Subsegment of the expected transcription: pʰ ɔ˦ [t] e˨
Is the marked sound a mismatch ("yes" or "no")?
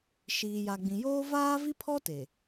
no